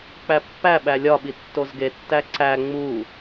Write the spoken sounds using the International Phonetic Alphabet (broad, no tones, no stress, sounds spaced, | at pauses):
k͡p æ pː æ ɓ æ lʲ ɒ ɓ i tː o z ɡ e tː æ ǀ æ ŋ͡m u